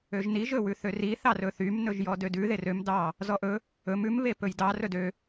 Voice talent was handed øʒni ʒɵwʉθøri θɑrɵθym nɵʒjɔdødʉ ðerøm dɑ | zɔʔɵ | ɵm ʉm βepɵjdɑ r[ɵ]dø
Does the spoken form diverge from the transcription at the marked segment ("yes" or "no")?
no